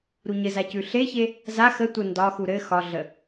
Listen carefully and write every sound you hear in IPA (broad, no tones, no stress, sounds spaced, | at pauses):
ɾ u ɲ ɘ z a c ʉ ɬ e ç e | z a x ə tʷ ə n d ɒ x u ɾ ɘ x ɒ ɮ ə